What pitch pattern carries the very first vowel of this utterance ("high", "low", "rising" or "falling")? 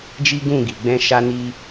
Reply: high